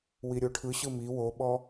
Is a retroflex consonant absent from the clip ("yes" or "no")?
no